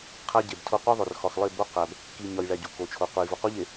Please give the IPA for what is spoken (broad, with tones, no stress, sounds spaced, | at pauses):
qʰ æ˦ ɟ e˨ b tʰ o˦ qʷ i˦ ðˤ o˨ r x ɒ˨ x lˠ e˦˨ b o˦ q æ˨ b | k i˨ ɲ ɒ˨ j ɭ æ˨ ɟ u˨ k o˨ t͡ʃʰ o˨ qʷ e˨ j v o˨ q u˦ ʎ e˨